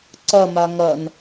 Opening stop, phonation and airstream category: click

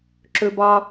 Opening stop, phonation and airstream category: click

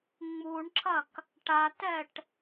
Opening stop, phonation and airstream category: click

